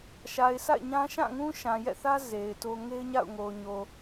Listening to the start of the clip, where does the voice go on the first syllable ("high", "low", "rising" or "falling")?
low